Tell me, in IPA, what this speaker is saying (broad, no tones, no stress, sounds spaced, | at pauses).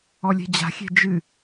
ɔ lʲ ɛ̤ d͡ʑ a̤ xʲ ɛ̤ d͡ʒ ɨ